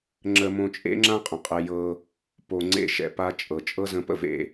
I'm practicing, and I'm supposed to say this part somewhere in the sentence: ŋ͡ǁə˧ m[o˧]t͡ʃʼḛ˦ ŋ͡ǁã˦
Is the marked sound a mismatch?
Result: yes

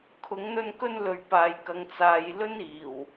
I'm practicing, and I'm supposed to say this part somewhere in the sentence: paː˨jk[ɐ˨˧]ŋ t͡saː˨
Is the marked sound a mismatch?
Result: no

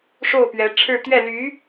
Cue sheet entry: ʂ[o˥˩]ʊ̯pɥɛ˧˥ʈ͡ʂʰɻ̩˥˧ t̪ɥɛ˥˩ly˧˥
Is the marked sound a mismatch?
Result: no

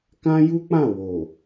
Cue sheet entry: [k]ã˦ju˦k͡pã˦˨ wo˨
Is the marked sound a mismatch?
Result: no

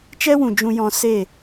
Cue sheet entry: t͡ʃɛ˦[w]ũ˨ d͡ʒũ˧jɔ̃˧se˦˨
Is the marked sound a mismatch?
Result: no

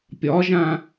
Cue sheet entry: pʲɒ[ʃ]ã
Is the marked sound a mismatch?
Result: yes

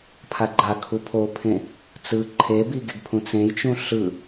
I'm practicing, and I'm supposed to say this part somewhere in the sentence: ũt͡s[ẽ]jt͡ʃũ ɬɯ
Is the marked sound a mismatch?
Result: no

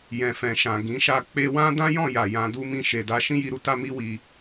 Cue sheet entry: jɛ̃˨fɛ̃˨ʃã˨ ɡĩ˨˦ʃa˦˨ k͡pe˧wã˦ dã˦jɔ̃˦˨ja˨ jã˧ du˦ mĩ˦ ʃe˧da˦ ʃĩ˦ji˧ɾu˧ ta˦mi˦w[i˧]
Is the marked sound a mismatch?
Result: no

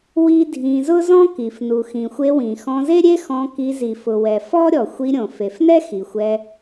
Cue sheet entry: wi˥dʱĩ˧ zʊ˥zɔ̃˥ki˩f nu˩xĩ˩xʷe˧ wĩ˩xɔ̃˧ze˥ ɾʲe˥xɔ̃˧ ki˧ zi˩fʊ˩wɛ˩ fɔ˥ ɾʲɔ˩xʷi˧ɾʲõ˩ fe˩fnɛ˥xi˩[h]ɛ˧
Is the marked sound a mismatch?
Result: yes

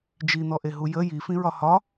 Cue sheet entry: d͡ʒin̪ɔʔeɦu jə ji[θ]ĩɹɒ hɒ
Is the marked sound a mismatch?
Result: yes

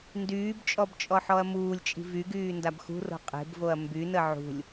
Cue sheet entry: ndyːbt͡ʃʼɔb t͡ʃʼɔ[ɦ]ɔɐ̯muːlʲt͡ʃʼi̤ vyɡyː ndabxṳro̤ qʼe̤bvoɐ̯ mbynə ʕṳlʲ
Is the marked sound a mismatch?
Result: yes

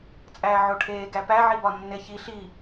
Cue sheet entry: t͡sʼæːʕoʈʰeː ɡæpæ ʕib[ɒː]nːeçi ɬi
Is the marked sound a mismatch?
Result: yes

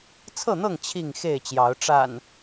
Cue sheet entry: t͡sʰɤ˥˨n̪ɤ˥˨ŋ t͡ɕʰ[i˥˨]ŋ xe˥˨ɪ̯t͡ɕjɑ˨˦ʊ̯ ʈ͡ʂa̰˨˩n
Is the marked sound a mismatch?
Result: no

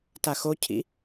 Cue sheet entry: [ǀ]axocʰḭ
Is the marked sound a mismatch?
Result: yes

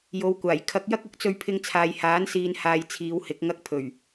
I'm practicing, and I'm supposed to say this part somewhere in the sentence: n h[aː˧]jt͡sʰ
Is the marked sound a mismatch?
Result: no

